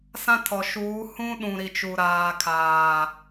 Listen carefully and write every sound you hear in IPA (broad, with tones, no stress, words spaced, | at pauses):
sã˦tʰɔ˨ʃuː˨˦ hũ˦ɗũ˨ ɾi˨t͡ʃu˨ɾaː˨ kʰaː˨